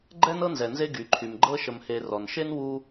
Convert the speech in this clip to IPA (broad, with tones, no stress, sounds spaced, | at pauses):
ɡ͡ǃ ɛ˥ n ɤ˥ n z ɛ˩ n z e˦ ɡ y˩ ǃʰ y˩ m ɡ͡ǃ ɤ˥ ʃ ə˨ m h e˨ r ɔ˩ n ʃ e˥ n w u˥